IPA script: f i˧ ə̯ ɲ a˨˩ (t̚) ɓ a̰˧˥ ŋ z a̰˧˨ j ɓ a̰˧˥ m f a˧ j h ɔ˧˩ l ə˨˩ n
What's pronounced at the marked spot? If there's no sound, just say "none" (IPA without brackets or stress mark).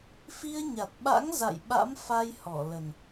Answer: t̚